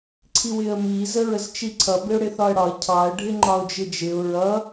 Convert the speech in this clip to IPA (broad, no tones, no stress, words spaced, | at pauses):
ǀʰiwɪə̯mi zəɹəzt͡ʃiǀʰʌ bɪʊ̯ɽɪθɒə̯ɽɒə̯ cʰɑə̯ ɖʱɪŋ͡ǃɒʊ̯d͡ʒɪd͡ʒɪʊ̯ ɹʌ